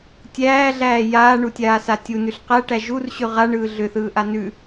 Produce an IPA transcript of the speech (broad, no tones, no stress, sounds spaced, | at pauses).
tʲ æː ɮ æː j aː ɳ u tʲ aː s a tʲ u n ʉ ɬ q æ ʈ æ ʒ u r ɕ ʉ ʁ a ɳ ɯː ɮ ʏ θ ɯː ʔ a n ʉ